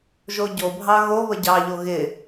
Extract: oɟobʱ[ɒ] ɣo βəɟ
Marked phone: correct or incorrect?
incorrect